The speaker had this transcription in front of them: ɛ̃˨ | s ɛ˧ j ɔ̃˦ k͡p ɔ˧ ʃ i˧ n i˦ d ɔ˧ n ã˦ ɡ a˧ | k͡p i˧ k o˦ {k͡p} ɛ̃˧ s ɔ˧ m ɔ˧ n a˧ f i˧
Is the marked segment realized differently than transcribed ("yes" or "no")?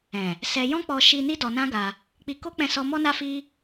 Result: no